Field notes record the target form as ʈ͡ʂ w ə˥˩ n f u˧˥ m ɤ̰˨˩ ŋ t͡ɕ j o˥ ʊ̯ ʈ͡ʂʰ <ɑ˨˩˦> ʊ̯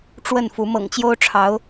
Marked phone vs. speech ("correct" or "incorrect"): incorrect